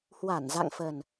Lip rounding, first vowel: unrounded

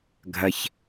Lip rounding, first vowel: unrounded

